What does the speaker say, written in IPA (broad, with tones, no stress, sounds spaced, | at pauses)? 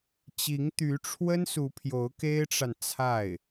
t͡ɕ i˧˥ ŋ t̪ y˧˥ ʈ͡ʂʰ w ə˥ n s u˧˥ pʰ j o˧˥ ʊ̯ k e˥ ɪ̯ ʈ͡ʂ a˨ n t͡sʰ a˥˩ ɪ̯